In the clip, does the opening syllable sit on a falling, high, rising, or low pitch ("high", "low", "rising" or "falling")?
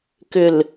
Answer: low